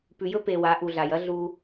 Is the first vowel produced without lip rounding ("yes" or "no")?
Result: no